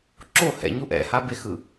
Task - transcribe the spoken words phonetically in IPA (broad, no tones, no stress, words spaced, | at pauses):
ǁo hɛ̰ɲu ʔɛ̰habexɯ